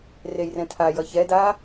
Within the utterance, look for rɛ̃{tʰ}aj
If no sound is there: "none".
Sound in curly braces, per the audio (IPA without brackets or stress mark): tʰ